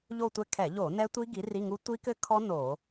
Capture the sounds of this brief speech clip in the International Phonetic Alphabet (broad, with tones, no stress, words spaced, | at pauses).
ʎo˦˨tʷɛ˦˨ kʰɛ˧˩˧ʎo˧˩˧ nɛ˦˥tʷi˦˥ ɡi˨˥ri˧˥˧ŋu˦˥ tʷi˦˥kɘ˦˥kʰɔ˦˥ no˧˩˧